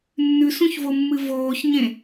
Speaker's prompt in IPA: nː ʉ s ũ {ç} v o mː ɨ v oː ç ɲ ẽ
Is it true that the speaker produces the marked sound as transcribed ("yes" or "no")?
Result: yes